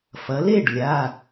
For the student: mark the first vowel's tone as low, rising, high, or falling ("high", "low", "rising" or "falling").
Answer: rising